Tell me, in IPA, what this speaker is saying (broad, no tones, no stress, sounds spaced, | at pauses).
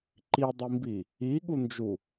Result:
ǃ i dˤ i m b i | i ɠ u n d͡ʒ u